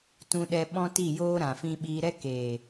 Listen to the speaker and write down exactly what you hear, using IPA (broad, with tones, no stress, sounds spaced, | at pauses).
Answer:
t ũ˧ ɗ ɛ˧ ɓ ɔ̃˦ t i˦˨ j oː˦ ɾ ã˨ f ĩ˧ ɓ iː˧ ɾ ɛ˦ k eː˨